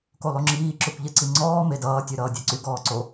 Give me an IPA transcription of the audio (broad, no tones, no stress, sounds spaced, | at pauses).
k o lˠ o ŋ͡ǁ iː ǁ ø kʷ ʎ e ǀ i ŋ͡ǀ ɔː m e d ʌː tʲ ø ɾ ʌː dʲ ɛ ǀ y ɡ ɔː ǀ o